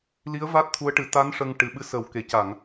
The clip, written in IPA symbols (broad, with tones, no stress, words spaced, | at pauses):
li˧˥ə̯ va˦˥t̚t̪ʰu˧˥ə̯ʈɨ˨˩˦ t̪a˧˥n ʂə˧ŋʈɨ˨˩ ɓɨ˧˥sə˨˩w ke˨˩˨ca˨˩˨ŋ